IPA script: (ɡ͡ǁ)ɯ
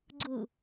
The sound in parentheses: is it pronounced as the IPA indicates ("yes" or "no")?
no